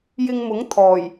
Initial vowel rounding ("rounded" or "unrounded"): unrounded